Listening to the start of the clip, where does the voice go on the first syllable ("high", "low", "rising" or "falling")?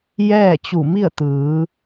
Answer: falling